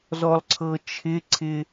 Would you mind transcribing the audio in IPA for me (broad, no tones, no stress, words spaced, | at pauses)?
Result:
zɔlˠǀʰɤt͡ʃʰɪǀʰɪ